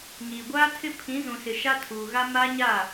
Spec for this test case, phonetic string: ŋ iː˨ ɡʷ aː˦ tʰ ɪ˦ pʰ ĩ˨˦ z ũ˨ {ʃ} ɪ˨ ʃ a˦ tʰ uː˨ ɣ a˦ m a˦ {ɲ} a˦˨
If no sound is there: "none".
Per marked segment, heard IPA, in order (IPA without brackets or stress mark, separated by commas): s, ɲ